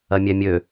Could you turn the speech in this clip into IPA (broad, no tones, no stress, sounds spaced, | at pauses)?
ɐ mʲ ɛ mʲ ø